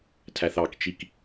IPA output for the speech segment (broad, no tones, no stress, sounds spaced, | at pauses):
tʰ æ θ ɑ k t͡ʃ i k